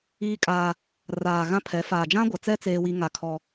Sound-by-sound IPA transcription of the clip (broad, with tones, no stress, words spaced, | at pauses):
iː˦kʼaː˦ | raː˨ ɣã˦pʰɛ˨˦ faː˨d͡ʒã˦ɡʷa˨t͡sɛ˦ t͡seː˦wi˦ŋa˦ kʰɔ˦